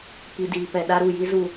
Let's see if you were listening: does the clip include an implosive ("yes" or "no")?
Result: yes